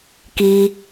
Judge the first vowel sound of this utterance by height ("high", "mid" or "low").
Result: high